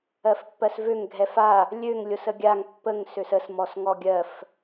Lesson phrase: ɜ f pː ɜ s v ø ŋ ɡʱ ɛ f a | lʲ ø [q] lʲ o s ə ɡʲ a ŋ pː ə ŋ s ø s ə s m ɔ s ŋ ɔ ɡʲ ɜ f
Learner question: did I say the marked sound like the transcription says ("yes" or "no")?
no